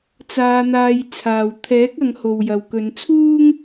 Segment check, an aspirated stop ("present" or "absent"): present